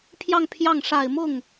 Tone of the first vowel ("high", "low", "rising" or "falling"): falling